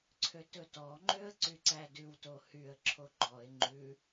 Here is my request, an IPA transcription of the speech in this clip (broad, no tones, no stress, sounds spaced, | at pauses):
ǀʰ ø t ɵ t ɔ ŋ͡ǃ ø ə̯ ǀ y ǀ æ d ʉ w t o h y ə̯ ǁʰ o ɡ͡ǃ ɔ ɪ̯ ŋ͡ǃ ʉ